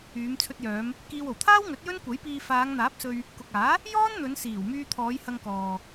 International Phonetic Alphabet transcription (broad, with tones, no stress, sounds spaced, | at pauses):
yː˨˧ m t͡sʰ ɵ˧ t̚ j œː˨˧ m | k iː˧ w o˨˩ w t̪ʰ aː˥ w ŋ ɵ˨˥ t̚ j ɵ˥ n kʷ ɐ˨˥ j p iː˧ f aː˨˧ ŋ n̪ aː˨˥ p̚ s ɵ˧ ɥ | k ʊ˨ k̚ aː˨˥ | j ɔː˥ n n̪ ɵ˨˧ n s iː˨˩ w m yː˧ t̪ʰ ɔː˨˧ j h ɐ˧ ŋ k ɔː˨